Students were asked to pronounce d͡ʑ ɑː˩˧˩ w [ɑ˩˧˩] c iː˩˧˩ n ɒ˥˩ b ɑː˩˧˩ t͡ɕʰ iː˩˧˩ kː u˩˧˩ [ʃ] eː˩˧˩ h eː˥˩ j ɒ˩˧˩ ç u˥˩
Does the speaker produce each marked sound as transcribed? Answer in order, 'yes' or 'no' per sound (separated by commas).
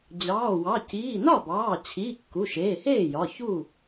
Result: yes, yes